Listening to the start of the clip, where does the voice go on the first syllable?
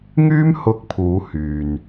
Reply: high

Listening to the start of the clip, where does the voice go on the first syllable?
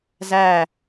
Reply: falling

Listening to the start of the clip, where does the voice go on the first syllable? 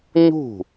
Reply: falling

